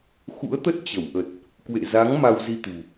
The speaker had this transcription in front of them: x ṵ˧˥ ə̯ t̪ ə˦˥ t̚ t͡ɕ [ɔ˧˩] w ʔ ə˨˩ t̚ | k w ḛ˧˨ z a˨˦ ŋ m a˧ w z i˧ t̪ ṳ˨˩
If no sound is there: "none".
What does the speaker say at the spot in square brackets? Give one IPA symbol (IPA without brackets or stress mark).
ə˧˩